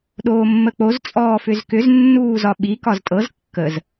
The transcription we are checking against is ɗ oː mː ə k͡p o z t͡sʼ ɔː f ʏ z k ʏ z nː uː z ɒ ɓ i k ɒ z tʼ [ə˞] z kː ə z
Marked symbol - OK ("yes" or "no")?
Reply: no